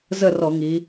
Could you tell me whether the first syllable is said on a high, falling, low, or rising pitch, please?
falling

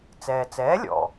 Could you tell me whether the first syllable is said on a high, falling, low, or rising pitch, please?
low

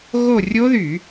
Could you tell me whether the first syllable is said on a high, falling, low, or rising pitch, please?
falling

